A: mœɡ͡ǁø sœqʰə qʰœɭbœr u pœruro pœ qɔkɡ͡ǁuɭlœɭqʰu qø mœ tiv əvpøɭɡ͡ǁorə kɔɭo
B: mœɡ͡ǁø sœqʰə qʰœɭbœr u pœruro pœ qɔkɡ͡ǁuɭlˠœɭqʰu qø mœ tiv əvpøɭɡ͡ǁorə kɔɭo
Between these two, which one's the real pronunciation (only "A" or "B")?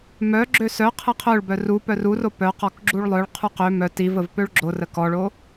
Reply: B